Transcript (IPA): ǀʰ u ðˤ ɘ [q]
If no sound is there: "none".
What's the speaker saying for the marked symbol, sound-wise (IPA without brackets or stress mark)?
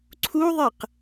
q